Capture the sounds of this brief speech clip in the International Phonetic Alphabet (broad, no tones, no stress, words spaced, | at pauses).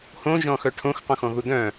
hõʒɔ̃ xœʈʰõx qõxɔ̃ɣudœ̃